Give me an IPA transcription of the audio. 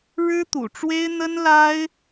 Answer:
ɻ ɻ̩˥ t̪ ṵ˨˩ ʈ͡ʂ w e˥ ɪ̯ n̪ ə˥ n l a˥ ɪ̯

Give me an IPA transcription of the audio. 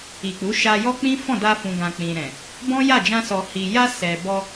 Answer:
i˨ k͡p u˨˦ ʃ a˧ j ɔ˦ k͡p ĩ˦ f ɔ̃˦˨ d a˧ f ũ˨ ɡ ã˨ k͡p ĩ˨ ɾ ɛ̃˨ | b ɔ̃˦ j a˦˨ d͡ʒ ã˧ s ɔ˨ h i˨ j a˧ s ɛ˨ b ɔ˧

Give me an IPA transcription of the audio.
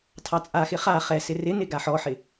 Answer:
tʰ ɑ t͡sʼ a x ɪ χ a χ ɛ s ɪ r ɪ n ɪ ɡ a ħ ɔ ħ ɪ

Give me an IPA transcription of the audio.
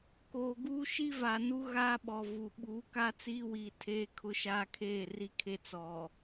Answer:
k oː˨ ɡ uː˦ ʃ i˦ v a˨ n u˦ ɣ aː˦ ɓ ɔ˨ v u˨ ɓ uː˨˦ k a˦ t͡s iː˦ w iː˨ tʰ eː˦ kʰ ʊ˦ ʃ aː˦ kʰ eː˦˨ r i˦ kʰ e˦ t͡s ɔ˨

